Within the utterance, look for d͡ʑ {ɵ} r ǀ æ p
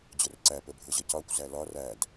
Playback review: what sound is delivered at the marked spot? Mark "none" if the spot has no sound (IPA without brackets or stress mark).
ʊ